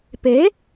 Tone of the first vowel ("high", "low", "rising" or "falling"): rising